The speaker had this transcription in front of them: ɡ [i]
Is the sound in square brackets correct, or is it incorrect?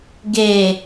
incorrect